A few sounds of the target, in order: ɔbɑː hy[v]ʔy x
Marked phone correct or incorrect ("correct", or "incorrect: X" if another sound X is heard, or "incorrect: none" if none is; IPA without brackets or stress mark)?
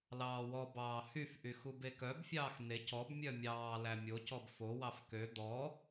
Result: incorrect: f